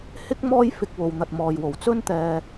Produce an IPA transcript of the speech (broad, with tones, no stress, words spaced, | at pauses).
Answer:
hɪ˥k̚ mɔː˥jfɪ˧k̚wo˨wn̪ɐ˨t̚ mɔː˨jwo˨˩w t͡sɵ˥nt̪ɛː˧